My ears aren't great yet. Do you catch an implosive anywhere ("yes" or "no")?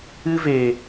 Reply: no